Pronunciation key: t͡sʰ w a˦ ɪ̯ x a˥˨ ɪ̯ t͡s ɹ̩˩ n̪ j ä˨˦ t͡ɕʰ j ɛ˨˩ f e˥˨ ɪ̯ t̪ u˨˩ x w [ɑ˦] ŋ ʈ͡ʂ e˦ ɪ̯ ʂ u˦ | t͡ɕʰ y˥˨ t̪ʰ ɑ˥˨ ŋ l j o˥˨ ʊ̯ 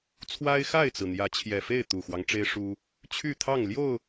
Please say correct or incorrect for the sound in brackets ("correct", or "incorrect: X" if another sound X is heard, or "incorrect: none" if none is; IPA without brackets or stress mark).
correct